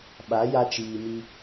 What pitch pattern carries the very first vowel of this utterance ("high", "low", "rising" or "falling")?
rising